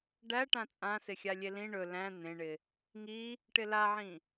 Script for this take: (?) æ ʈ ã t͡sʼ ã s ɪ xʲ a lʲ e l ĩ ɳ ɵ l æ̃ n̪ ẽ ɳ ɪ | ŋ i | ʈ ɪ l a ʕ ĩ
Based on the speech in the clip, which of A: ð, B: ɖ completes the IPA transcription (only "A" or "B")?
B